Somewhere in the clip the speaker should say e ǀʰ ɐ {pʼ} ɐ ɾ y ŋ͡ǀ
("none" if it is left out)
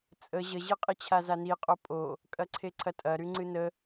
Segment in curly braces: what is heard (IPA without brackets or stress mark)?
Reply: tʼ